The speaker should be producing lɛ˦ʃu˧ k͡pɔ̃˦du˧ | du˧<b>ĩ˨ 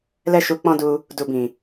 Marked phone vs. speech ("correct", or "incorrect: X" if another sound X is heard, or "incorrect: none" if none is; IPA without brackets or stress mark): correct